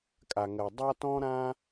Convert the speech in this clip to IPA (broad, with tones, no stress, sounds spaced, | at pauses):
kʼ a˩ ŋ ɜ˩ dˤ a˥ t ɔ̃˥ ɾ ãː˥